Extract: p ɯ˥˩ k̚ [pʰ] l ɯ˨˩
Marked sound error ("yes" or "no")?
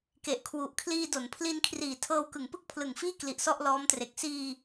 no